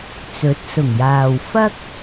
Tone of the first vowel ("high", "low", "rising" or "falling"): rising